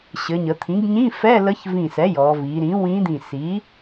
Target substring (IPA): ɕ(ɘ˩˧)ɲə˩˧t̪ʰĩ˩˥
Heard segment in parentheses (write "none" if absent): ɘ˩˧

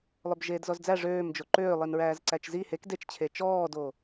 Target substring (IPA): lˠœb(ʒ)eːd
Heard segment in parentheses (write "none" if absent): ʒ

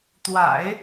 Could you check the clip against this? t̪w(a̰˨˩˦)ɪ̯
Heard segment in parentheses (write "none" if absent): a̰˨˩˦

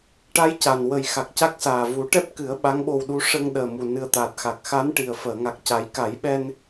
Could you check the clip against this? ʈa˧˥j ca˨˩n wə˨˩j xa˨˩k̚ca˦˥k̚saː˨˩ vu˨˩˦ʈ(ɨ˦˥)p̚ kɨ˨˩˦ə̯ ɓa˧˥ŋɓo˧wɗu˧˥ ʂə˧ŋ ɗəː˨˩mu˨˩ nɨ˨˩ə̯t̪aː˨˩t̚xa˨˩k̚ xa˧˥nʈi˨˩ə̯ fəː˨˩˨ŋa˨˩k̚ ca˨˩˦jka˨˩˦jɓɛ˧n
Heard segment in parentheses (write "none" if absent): ɛ˦˥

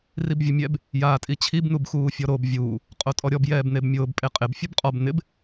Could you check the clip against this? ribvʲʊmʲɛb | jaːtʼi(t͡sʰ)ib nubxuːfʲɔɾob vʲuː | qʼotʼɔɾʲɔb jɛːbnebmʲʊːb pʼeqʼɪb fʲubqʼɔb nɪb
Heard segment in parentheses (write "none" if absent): t͡ɕʰ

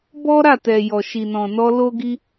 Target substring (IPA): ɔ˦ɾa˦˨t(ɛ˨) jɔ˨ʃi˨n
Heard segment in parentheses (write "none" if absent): ɛ˨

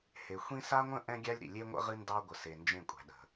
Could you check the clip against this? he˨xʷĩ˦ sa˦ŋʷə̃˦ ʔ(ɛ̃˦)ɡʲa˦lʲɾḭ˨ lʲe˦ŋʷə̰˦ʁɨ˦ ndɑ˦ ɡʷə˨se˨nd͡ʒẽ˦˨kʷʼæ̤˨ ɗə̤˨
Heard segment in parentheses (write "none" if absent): ɛ̃˦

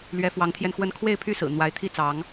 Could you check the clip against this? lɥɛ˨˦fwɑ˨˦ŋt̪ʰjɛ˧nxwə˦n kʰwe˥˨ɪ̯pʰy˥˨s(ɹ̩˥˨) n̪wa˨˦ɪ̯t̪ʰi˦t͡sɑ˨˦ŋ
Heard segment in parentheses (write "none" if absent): ɹ̩˨˩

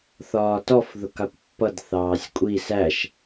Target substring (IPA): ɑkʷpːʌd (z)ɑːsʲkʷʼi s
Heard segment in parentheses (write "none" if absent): θ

